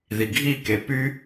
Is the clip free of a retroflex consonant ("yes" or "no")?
yes